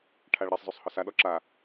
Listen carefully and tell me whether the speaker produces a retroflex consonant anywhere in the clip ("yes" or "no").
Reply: yes